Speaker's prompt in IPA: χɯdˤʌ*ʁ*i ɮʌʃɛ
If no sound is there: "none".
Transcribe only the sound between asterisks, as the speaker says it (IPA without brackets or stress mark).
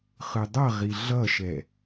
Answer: ʁ